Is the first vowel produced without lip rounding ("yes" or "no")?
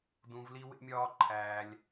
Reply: no